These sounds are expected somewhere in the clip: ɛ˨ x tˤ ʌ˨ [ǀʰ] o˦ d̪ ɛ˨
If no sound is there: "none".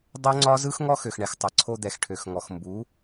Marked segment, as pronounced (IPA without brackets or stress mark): ǀʰ